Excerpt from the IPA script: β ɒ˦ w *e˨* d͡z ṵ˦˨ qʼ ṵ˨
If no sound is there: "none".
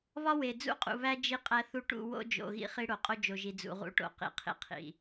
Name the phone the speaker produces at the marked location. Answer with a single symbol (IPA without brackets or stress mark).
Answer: e˨